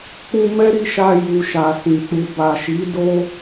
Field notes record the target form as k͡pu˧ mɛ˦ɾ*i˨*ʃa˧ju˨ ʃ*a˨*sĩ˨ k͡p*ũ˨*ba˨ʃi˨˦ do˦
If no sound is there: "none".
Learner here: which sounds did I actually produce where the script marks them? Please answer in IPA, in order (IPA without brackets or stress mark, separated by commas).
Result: i˧, a˨, u˨